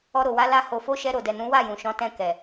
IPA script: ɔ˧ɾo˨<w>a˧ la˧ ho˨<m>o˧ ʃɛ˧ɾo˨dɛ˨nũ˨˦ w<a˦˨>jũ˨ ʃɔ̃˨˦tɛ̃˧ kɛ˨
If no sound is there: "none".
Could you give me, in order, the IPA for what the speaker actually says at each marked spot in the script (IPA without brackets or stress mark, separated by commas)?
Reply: w, f, a˦˨